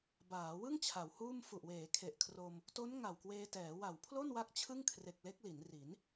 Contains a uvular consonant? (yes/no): no